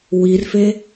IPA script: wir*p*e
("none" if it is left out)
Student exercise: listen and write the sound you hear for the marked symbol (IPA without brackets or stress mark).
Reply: f